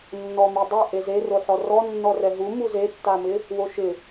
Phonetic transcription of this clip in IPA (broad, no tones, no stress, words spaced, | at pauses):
nːɔmidˤe ʔezeroħɔ rɔnːɔrɛ ɦumu zetːamɪ | woʃɪ